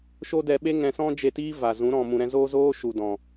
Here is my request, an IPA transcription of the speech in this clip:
ʃ o˦ d ɛ˧ ɓ e˦ ŋ ɛ̃˧ s ɔ̃˦ d͡ʒ e˧ t iː˦ v a˨ z ũ˨˦ ɾ ɔ̃˨ m ũ˨ ɾ ɛ̃˧ z oː˦ z oː˦ ʃ u˨ d ɔ̃˨

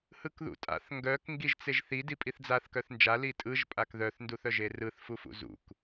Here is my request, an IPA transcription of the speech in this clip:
h ɯ k ð ṵ tʼ a̰ θ ŋ ɡ œ k ŋ ɡ i ʒ t͡s e ʒ θ i d i pʼ i θ d͡z a θ k œ θ n d͡ʒ a l i tʼ ɯ ʒ pʼ a k ð œ θ n d u θ œ ʒ e r ɯ θ f u f ṵ z ṵ k

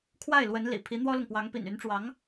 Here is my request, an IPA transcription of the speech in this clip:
kʰ w a˥˩ ɪ̯ l w ə˧˥ n l ḭ˨˩ pʰ i˧˥ n̪ w ɔ˥ l ʊ˨ ŋ p w ɑ˧˥ ŋ p ḭ˨˩ n y˧˥ n ʈ͡ʂ w ɑ˧˥ ŋ

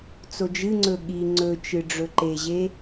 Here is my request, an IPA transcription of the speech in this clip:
t͡s o d͡ʒ ɨ ŋ͡ǀ ɵ ɠ i ŋ͡ǀ ɵ t͡ʃ ɨ ɖ͡ʐ ɵ ǃ e ʑ e

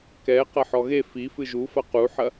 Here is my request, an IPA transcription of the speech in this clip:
k ɛ q ɐ ħ ɔ ɣ e f i f ɨ ʒ u f ɐ q u ħ ɐ

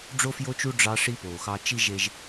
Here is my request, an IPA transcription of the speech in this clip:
ɖ͡ʐ o˦ f j o˦ t͡ʃ u˦ ɖ͡ʐ ɑ˦ ʂ i˦ p oː˨ x ɑ˦ t͡ʃ i˦ ʒ e˦ ʒ

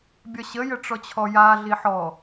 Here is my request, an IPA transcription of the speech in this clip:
bʲ ɒ ɕ ə j ə ʈ͡ʂ ɔ t͡ɕʰ ɔ j a ɮ i ħ ɔ

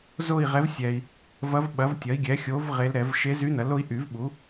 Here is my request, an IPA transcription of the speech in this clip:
z o˥˧ i̯ ʁ ɛ˧˥ v sʲ ɛ˨ i̯ | v ɐ˧˥ v ɓ ɐ˩˥ v tʲ ɐ˩˥ i̯ ɡʲ ɛ˩˥ xʲ o˧˥ v ʁ e˧˥ l ɾ ɛ˨˩˦ v ʃ e˧˥ z y˧˥ n ɐ˩˥ l o˧˥ i̯ ʔ y˨˩˦ v ɓ u˩˥

